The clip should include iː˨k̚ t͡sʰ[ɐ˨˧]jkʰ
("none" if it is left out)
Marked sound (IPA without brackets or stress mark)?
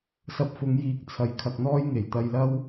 ɐ˨˧